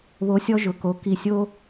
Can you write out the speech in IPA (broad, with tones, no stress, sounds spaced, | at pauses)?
β o˨˦ sʲ ɔ˧ ʒ ʊ˨ k o˨˦ k i˧ sʲ o˦